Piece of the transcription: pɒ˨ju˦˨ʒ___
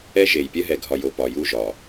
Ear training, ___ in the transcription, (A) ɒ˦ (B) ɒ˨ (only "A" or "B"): B